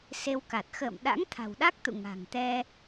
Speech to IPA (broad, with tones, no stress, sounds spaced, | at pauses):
s e˧ w k a˨˩ t̚ x ə̰ː˧˨ m ɗ a̰˧˥ ŋ t̪ʰ a̤˨˩ w ɗ a˦˥ k̚ t̪ ṵ˧˨ ŋ a̤˨˩ ŋ t̪ ɛ˧